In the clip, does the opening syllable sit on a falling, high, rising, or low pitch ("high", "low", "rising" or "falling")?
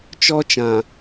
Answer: high